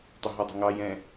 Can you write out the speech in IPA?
tˤəɦədˤə̤ ŋɑ jɛ̃

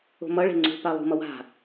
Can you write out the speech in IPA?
o̤mʌɭe̤ ŋ͡ǀṳpa lˠṳmʌ wa̤

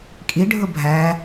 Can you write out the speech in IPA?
kʼi ɖʱʊbʱæ

